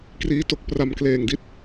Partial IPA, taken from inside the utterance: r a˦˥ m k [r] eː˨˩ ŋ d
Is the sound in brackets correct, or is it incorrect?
incorrect